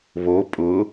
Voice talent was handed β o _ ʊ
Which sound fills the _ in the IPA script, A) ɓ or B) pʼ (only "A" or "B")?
B